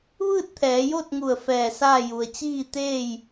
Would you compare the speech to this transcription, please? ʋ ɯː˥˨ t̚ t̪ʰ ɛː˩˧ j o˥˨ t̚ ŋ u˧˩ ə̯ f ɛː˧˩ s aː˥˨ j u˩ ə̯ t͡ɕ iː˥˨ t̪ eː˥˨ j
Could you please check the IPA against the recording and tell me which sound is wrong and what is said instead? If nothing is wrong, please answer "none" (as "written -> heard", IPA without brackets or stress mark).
none